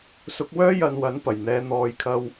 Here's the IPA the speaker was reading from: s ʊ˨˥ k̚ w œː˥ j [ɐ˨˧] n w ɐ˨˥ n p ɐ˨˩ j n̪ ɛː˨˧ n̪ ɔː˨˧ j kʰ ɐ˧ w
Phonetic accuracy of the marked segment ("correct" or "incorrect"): incorrect